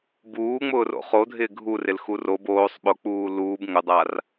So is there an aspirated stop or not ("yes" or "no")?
no